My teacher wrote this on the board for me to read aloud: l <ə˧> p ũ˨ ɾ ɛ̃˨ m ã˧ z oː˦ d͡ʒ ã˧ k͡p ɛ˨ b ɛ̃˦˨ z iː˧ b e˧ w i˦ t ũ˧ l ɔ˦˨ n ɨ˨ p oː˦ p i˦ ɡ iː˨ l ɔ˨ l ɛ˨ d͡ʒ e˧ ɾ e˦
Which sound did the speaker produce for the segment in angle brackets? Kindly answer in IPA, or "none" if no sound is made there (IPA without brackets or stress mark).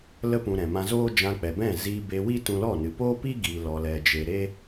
ə˧